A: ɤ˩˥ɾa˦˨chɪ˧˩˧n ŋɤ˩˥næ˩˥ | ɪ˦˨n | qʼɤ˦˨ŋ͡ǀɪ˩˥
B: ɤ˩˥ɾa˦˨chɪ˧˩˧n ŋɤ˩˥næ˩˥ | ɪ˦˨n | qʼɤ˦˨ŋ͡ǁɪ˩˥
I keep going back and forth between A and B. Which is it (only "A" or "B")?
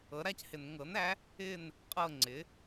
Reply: A